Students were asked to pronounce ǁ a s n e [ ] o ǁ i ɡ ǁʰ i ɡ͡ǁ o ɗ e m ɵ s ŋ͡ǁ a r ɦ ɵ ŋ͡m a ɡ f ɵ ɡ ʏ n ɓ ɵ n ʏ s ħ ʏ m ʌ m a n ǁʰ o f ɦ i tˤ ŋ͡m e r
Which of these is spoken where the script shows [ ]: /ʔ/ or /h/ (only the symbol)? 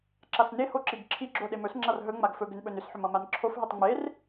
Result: h